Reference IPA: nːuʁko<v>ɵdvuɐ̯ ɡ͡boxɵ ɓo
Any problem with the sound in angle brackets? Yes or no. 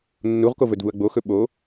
no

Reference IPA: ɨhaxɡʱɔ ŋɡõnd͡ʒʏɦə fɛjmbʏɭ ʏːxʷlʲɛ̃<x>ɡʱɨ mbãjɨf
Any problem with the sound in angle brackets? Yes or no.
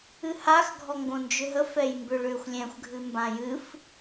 yes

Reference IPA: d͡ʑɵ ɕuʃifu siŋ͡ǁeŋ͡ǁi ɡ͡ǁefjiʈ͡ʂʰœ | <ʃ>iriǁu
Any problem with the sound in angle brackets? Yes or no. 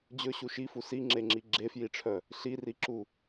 yes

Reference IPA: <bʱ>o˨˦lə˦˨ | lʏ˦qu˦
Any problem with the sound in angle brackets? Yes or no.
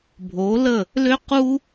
no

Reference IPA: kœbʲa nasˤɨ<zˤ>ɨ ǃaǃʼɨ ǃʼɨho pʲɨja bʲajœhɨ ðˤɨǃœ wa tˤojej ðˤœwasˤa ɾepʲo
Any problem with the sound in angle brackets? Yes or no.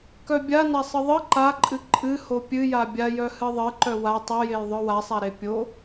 yes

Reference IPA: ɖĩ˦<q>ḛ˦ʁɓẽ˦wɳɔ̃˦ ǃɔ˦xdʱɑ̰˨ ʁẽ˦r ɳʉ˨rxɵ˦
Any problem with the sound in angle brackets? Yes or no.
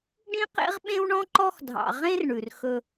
no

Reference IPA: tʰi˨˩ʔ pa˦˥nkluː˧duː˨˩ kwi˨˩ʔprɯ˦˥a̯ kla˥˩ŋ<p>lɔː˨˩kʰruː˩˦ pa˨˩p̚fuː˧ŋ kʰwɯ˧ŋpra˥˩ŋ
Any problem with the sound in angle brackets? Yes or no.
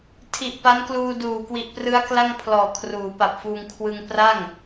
yes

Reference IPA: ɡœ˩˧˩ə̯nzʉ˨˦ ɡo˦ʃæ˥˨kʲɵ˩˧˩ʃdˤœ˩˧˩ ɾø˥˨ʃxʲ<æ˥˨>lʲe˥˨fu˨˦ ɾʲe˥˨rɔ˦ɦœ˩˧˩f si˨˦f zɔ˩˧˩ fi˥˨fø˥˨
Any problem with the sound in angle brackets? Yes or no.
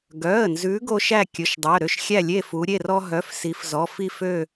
no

